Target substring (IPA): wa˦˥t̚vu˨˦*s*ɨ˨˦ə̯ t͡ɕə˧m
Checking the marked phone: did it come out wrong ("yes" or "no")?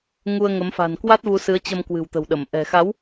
no